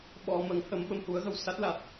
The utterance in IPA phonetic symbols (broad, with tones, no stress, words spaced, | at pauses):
ɓɔ˨˩mə˨˩˦ŋhə˨˩˦m ɓə˨˩˨mhu˨˩˦ə̯ɣə˨˩wsa˦˥t̚ la˨˩t̚